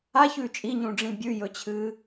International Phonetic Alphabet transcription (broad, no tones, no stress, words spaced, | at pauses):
açʉ t͡ʃʼiɲũɖ͡ʐĩ bʲʉ jɵt͡ɕʰɨː